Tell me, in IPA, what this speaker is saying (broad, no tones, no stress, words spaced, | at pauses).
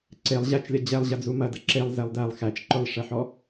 ǀelˠ ʑæt͡ʃlʲɐ d͡ʑɛlˠʑɐd͡zu mɐdɐ ǁelˠzɛlˠ dælˠ xæt͡ʃ ǃʊlˠʂɛħɔ